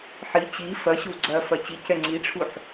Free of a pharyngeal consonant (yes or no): no